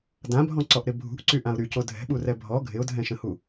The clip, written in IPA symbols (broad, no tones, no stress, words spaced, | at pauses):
dãbʱɔ̃ǀɔʔɾɪ bʱṳʔǀyʔãʊ̯ ɾyco dʱɛ̤ɓurɛ bʱɔ ɡʱɪʊ̯dʱɛ̃ʃə̃hu